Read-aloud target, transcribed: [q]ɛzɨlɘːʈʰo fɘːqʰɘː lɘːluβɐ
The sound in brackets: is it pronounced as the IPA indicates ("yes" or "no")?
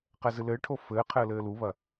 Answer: yes